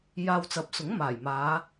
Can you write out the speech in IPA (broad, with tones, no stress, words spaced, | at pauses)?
jaː˧wt͡sɐ˨˥p̚sʊ˨˥ŋ maː˨˩jmaː˨˧